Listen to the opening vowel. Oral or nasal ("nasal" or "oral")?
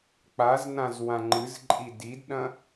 oral